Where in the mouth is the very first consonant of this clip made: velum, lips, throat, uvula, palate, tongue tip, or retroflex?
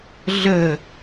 tongue tip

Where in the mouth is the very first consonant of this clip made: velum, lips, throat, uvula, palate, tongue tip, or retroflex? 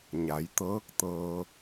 palate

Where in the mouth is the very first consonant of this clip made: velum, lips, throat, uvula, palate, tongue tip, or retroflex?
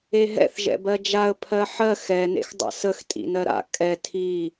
throat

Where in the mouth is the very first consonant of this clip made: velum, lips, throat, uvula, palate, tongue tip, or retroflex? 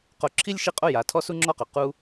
uvula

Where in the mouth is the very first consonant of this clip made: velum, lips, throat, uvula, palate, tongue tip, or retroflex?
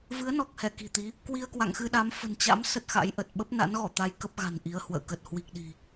lips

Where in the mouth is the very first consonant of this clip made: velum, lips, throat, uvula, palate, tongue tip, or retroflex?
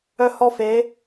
throat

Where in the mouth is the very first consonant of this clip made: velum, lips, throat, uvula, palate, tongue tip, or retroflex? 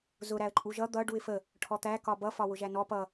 tongue tip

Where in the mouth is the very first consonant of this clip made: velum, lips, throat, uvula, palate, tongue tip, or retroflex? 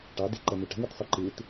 retroflex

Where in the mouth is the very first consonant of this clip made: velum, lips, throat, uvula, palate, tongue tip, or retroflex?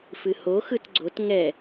lips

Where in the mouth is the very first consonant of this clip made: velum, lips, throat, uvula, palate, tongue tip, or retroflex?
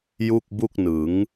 palate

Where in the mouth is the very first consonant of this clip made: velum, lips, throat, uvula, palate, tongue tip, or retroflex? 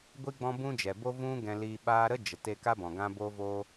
velum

